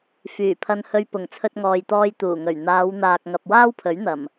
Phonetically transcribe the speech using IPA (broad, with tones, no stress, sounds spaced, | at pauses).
f yː˨˩ pʰ ɐ˧ n h ɵ˧ ɥ p ʊ˨˩ ŋ t͡sʰ ɵ˧ t̚ ŋ ɔː˨ j t̪ ɔː˧ j t̪ uː˨˩ ŋ ɵ˨˩ ɥ n̪ aː˨˧ w n̪ aː˨ k̚ ŋ ɐ˨ p̚ w aː˥ w pʰ ɵ˨˥ ɥ n̪ ɐ˨˩ m